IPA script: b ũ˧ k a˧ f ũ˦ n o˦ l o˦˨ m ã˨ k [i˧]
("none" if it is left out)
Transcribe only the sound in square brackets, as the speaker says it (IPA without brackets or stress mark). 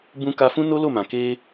e˧